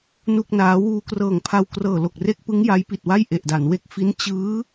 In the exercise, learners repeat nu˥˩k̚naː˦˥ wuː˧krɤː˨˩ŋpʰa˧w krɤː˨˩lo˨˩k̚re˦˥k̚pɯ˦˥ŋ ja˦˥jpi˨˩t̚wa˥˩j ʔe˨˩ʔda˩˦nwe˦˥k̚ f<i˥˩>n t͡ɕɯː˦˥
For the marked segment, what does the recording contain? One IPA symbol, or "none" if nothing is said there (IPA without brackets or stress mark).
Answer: i˦˥